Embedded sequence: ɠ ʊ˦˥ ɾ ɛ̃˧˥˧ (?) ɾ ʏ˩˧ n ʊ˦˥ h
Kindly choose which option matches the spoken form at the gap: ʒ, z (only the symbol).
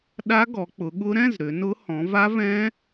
z